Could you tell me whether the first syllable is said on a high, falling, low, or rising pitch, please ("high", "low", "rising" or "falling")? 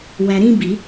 low